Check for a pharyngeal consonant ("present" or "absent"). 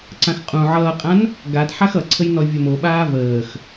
present